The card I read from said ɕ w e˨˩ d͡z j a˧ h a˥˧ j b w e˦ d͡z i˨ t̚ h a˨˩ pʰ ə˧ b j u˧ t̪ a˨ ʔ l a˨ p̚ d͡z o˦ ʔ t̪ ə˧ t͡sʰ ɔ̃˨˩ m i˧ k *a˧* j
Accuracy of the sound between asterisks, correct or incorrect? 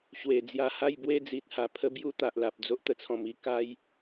incorrect